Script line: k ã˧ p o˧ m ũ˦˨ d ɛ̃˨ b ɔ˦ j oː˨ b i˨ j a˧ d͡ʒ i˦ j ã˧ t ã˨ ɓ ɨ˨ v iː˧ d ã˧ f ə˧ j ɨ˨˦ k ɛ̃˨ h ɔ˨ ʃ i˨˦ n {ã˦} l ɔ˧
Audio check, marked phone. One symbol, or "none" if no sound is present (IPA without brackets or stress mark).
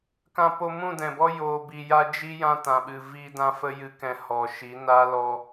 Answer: a˦